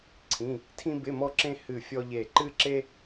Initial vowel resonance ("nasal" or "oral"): nasal